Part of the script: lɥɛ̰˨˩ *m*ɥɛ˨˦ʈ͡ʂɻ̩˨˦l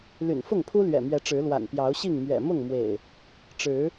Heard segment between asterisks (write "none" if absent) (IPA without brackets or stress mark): m